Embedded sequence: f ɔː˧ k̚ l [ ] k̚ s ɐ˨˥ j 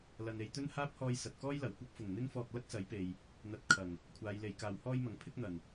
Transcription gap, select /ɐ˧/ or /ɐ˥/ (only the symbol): ɐ˥